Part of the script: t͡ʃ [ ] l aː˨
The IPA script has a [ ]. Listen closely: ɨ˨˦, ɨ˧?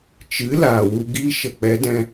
ɨ˨˦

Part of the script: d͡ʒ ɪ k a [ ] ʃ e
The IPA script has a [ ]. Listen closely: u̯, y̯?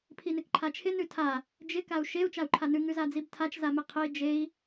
u̯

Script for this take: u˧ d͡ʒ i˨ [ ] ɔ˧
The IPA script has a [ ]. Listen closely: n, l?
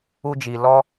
l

